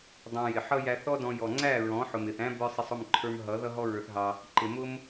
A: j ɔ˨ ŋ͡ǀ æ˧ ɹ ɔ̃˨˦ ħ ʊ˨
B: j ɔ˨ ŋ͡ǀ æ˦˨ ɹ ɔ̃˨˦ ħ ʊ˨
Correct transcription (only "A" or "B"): B